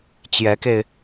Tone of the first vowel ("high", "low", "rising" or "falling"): rising